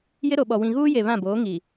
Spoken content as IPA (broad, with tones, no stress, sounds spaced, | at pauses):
j ɪ˦ ɾ o˨ ɓ ɔ˨ w ĩ˨ ɣ uː˦ j e˨ β ã˦˨ b oː˨˦ ŋ i˨